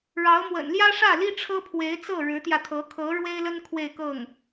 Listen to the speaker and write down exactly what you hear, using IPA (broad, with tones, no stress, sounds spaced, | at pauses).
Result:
ɻ ɑ˧˥ ʊ̯ m w ə̰˨˩ n l j ä˥ ʂ ä˥˩ l i˥ ʈ͡ʂʰ ɤ˥ pʰ w e˧˥ ɪ̯ t͡s ɤ˥˩ ɻ ɻ̩˧˥ t̪ j ä˧ t̪ʰ ɤ˧˥ kʰ ɤ˧˥ ɻ w e˥ ɪ̯ l ə˥ n kʰ w e˥˧ ɪ̯ k ɤ˥˩ ŋ